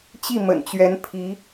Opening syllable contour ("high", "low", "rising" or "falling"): falling